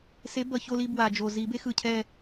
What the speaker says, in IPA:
se˨˥bʌ˨˩ço˦˨li˦˨ bwa˨˩d͡ʒo˨˩ zi˨˩˦be˨˥xɯ˨˩ cʰɛ˦˨

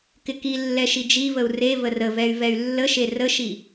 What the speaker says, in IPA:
kɪkilːɛ ʃid͡ʒivəu̯ re vərəvɛy̯ vɛy̯lːəʃe rəʃi

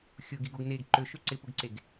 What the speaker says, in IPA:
xʲʊɡiɡoɡ neɡ ǃøʃø ǀɪpʊɡǀeɡ

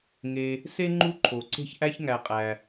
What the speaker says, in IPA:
ŋe˨ | se˥ŋ͡ǃu˦ǃʰo˩ ǀe̤˥ç ʔæ˥çŋæ˨qʼæ˩

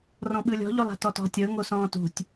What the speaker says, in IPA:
rɔ̃ɓɯlʲɔ̤ ʎolˠa̤tɔtɔ̤ tʲɤ ŋosɔ̃ːtṳtʲ

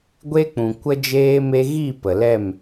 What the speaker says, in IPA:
ɡʷe˦k͡pũ˨ kʷə˦d͡ʒeː˦me˦ ɣi˦˨ pə˨lɛ˦˨m

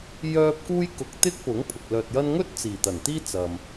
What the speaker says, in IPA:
jœː˥p̚ kuː˥jkʊ˧k̚ t̪ɪ˥k̚pʊ˨˥ŋ pʰʊ˨k̚lœː˧t̚jɐ˥n ŋɵ˥t̚ t͡siː˨˩t̪ɐ˨˩nt̪iː˥t͡sɐ˨m

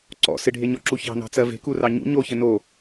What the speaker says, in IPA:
ǀɔ̰ sɪɖʱeɲɔǁu çɑ̤nɑ̤t͡sɜ ve̤kurɑ ɲṵ ɲoçɘ no

